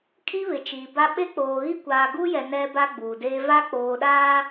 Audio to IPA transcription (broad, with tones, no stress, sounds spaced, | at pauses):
kʼ i˦ β ɪ˨ t͡ʃ iː˨ b a˦ ɓ e˦ k͡p oː˨ ɣ i˦ kʷ aː˨ ɡ uː˦ j ɛ˨ n ɛ˦ b a˦ ɡ͡b uː˨ d eː˦ v a˦ k͡p oː˨ ɗ aː˦